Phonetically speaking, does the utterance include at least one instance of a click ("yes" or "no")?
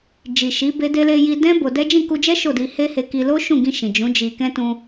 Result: no